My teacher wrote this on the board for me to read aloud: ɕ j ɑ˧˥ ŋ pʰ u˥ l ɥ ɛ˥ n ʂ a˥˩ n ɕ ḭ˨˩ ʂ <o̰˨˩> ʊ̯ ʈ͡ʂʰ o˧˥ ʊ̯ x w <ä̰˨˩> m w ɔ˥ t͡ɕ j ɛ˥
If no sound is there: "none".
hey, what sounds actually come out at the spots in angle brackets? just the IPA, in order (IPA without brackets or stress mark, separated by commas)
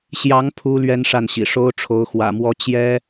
o˥, ä̰˨˩